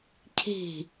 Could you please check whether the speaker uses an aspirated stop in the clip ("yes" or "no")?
yes